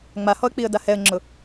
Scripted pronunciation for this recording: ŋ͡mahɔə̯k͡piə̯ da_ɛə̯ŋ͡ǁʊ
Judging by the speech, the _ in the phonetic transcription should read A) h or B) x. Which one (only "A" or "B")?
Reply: A